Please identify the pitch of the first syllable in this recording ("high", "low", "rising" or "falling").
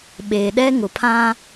low